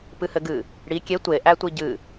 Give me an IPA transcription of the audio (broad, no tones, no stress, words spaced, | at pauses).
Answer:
pɨhɘɡɨ | ɽi kʲe tʷe ʔætʷiɟɨ